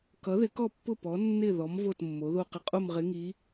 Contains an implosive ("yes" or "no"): no